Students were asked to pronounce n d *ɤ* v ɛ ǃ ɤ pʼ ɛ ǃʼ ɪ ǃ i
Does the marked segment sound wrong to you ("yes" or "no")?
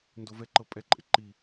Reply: yes